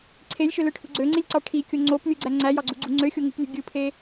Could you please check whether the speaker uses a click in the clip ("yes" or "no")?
yes